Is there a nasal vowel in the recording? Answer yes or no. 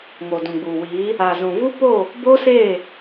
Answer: yes